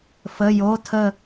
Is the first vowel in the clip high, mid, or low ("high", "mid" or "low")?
mid